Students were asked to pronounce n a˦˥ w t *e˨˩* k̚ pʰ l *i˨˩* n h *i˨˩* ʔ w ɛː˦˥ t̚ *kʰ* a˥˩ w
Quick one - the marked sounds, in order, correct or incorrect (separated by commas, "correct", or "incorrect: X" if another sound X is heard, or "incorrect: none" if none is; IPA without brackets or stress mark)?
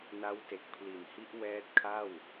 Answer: correct, correct, incorrect: i˦˥, correct